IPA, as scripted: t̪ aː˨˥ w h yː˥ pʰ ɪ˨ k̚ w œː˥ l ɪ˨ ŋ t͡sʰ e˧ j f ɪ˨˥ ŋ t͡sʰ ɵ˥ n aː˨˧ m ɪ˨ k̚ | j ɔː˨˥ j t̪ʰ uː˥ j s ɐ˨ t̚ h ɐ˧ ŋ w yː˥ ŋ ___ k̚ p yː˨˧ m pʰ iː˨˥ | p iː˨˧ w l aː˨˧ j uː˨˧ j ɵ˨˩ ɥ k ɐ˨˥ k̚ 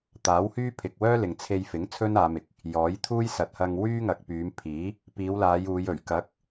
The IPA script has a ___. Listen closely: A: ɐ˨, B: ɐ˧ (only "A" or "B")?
A